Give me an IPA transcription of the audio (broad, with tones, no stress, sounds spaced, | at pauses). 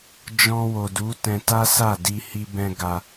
d͡ʒ ɔ̃˧ w o˨ d u˨˦ t ɛ̃˧ t a˦ s a˦˨ d i˧ h i˧ b ɛ̃˧ ɡ a˧